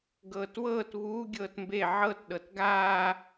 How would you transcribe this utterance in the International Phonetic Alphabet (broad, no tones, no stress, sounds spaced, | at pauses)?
ɡ ɤː t w ɤː t β uː ɡʲ ɤː t m b e ʕ ɤ t ɗ ɤ t ɡ aː